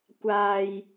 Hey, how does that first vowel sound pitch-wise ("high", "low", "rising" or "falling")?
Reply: low